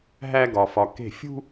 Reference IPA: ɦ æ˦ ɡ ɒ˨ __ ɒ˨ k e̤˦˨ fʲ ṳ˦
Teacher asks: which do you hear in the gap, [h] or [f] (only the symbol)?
f